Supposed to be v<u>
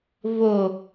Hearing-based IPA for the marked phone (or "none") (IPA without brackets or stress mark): o